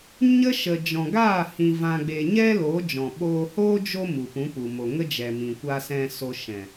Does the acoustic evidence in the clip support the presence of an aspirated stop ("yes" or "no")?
no